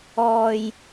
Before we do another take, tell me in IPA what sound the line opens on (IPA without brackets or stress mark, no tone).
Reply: ɔː